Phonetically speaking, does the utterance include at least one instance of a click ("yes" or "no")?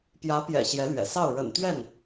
no